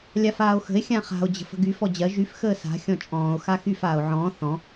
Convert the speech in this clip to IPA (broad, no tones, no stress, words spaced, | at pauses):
lʲafaːo̯xə̤e̯ xʲãχa̤o̯ d͡ʑə̤fə̤ɡy fɔd͡ʑɜ ʒyf xəːsa̤ xʲɔ̃t͡ʃʼɔ̃ːo̯ xaxyf aːo̯ʕɔ̃ː θɔ̃